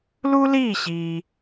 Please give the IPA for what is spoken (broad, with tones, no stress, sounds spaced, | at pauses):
l u˥ l iː˥˨ ɕ iː˨